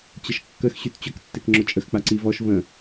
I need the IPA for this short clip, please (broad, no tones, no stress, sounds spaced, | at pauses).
t͡ɕ ə ʃ kː ə x ɕ y t t͡ɕ ʊ k tː e k ŋ͡ǁ ʊ t͡ʃʼ ə x k͡p a ǀ i v ɔ ʃ v ə̃